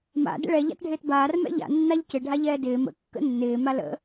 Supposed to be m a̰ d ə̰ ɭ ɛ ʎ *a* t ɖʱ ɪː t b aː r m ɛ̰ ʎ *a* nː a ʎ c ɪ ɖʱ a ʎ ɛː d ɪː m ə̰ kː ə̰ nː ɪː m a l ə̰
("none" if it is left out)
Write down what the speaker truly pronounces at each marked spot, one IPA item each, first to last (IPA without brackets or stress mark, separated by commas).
a̰, a̰